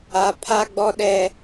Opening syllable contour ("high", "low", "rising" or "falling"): high